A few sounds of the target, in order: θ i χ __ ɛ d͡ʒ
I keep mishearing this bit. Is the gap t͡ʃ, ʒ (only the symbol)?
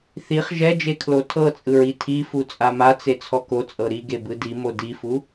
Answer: ʒ